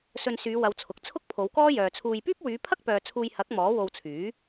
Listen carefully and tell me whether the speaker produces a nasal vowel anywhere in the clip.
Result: no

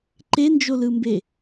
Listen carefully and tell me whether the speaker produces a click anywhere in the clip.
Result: yes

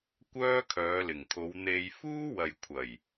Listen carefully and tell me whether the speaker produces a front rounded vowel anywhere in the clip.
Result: yes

